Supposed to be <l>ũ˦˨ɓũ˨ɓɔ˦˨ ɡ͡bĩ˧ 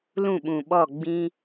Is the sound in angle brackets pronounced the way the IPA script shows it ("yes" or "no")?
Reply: yes